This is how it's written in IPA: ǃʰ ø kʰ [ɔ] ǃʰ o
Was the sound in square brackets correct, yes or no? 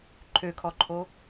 yes